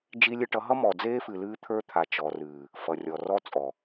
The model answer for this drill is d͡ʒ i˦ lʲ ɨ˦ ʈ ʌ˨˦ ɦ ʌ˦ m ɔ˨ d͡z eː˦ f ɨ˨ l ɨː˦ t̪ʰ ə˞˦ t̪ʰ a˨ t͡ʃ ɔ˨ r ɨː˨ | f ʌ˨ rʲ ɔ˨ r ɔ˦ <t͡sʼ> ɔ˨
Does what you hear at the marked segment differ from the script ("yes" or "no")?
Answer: no